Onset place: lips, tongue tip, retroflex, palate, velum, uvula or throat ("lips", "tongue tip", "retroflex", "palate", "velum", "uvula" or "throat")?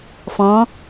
lips